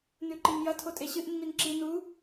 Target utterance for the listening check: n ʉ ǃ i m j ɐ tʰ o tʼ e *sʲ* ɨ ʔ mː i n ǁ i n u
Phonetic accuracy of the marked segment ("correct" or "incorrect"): incorrect